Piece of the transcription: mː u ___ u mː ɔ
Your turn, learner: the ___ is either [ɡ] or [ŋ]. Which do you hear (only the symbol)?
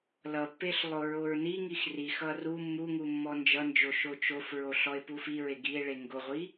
ŋ